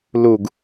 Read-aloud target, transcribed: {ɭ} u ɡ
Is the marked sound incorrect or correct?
incorrect